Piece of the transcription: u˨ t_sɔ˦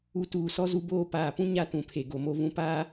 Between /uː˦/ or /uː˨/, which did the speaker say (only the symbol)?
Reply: uː˨